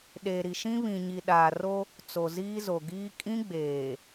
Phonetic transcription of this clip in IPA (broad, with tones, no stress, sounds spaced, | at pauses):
ɗ eː˨ ɾ i˨ ʃ ĩ˦ β ĩ˨ ɲ i˨ ɗ aː˨ r o˦ | t͡s o˨ z iː˦ z o˨ ɡ iː˦ kʼ ĩ˦ ɡ͡b eː˨